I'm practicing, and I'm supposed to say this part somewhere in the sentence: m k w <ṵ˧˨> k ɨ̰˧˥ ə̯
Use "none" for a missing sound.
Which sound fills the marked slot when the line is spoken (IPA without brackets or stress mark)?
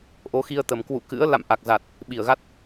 ṵ˧˨